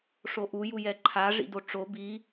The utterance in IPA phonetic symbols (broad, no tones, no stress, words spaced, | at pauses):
ʂoʔu jujɛǃʰa ʐḭdoʈ͡ʂo bi